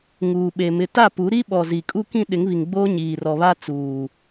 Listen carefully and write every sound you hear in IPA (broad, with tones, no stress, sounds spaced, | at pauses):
ŋ uː˨ ɓ e˨ m ɪ˨ t a˦˨ p u˨˦ ɾ i˦ ɓ ɔ˨ z i˨ kʼ u˦ k ĩ˦ ɗ ɪ˨˦ ŋ β i˨ ŋ ɡ͡b oː˦ ɲ iː˨ r ɔ˨ β a˦ t͡s uː˨